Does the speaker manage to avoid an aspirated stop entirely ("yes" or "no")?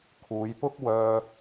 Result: no